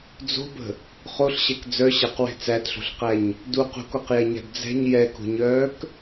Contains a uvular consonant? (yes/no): yes